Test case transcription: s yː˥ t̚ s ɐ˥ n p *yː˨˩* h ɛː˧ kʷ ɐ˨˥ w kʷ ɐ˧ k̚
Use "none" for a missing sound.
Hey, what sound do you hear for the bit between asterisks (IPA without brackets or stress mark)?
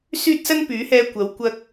yː˨˥